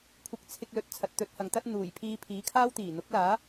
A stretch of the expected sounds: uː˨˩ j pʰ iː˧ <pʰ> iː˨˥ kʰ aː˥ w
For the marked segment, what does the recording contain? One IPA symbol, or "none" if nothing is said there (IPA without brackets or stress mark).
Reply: pʰ